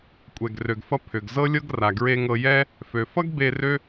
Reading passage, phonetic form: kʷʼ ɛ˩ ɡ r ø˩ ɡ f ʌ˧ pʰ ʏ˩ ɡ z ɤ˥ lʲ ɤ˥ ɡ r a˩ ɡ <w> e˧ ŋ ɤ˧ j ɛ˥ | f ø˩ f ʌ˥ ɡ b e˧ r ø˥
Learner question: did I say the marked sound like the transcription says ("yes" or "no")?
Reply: no